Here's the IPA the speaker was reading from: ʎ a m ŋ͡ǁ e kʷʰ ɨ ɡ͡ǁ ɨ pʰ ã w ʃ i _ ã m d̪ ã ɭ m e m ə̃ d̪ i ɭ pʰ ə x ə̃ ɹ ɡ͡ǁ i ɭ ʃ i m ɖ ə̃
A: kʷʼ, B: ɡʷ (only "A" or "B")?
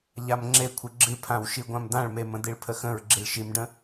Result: B